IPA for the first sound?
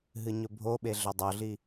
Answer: ɦ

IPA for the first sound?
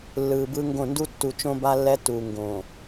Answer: lː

